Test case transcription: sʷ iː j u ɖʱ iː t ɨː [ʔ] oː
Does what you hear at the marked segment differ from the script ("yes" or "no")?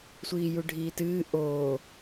no